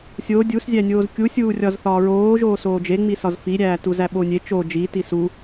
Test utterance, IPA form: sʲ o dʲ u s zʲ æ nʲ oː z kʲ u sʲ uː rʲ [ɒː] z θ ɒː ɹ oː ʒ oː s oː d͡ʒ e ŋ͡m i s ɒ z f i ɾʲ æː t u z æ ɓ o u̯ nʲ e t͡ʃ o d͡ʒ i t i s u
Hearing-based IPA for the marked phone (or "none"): ɒ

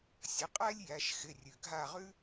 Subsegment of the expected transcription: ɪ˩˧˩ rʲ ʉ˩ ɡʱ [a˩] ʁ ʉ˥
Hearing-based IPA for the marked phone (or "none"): a˦˨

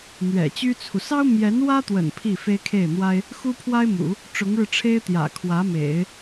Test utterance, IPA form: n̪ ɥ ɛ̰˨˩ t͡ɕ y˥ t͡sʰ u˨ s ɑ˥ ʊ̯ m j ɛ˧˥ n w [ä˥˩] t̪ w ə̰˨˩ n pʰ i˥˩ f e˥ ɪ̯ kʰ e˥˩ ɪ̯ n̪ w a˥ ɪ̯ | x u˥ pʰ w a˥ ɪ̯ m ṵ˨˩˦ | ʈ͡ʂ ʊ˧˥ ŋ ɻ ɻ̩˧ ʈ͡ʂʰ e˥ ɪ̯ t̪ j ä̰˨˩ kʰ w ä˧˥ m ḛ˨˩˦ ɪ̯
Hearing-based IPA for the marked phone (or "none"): ä˥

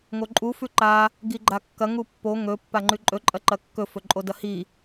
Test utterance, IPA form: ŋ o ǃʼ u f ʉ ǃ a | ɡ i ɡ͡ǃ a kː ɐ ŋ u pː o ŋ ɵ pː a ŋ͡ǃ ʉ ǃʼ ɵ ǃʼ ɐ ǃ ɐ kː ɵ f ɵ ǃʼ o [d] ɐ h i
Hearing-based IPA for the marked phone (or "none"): d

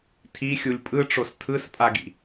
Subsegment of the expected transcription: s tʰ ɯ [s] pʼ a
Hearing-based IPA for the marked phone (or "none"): s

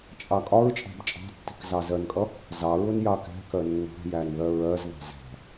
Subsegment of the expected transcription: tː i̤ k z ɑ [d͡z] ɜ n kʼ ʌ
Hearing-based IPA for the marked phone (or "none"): z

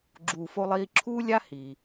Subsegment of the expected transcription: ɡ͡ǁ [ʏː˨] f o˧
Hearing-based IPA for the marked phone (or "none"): uː˨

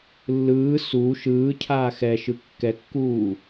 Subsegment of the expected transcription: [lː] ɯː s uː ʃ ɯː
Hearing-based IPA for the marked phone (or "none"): lː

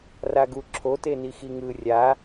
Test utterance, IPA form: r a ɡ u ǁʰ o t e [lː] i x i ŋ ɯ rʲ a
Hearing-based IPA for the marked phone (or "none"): n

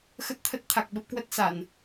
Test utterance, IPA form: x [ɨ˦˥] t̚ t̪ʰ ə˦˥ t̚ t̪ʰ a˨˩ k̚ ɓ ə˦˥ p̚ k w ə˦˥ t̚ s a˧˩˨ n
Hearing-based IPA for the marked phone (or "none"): ə˦˥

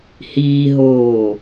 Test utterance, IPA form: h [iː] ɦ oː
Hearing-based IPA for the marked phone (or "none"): iː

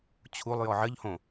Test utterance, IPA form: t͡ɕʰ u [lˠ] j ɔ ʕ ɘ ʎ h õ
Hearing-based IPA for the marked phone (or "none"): lˠ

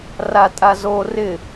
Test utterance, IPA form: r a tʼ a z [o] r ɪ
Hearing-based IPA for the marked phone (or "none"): o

